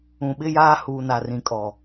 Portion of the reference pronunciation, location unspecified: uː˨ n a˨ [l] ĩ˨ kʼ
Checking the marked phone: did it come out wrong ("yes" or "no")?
yes